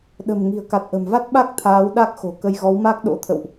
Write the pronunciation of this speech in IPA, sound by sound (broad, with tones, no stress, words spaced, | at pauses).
ɗə̤˨˩mŋi̤˨˩ə̯ ka˨˩t̚ʔə̤˨˩mva˦˥t̚ɓa˦˥k̚ t̪ʰaː˨˦wɗa˦˥k̚xo̤˨˩ kə˧jɣɔ˨˦w ma˦˥k̚ ɗo̰˧˥t̪ʰə̰˧˨wʔ